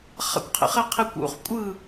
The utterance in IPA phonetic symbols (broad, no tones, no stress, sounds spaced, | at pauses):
χ a̰ kʷ qʰ ḛ χ ɛ qʰ e kʷ ṵ χ kʷʼ ɯ